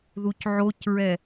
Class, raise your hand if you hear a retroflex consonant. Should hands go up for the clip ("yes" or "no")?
no